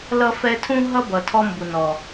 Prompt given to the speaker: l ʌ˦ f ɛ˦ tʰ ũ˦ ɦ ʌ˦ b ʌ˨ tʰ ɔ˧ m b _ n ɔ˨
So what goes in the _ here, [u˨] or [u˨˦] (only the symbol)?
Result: u˨